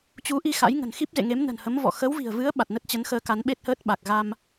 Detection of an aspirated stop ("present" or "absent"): absent